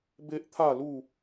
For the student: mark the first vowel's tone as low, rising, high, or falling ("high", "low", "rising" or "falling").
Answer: high